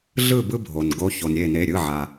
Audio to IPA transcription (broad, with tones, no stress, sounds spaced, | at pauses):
ɮ ɯ˥˨ b ɯ˦ bʱ o˩ n ɡ o˨˦ ç o˩ n ɾʲ e˧˩ n e˩˧˩ ɾʲ ɯ˩˧˩ ʕ a˩